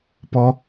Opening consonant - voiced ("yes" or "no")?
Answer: no